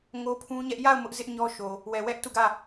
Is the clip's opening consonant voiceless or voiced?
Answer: voiced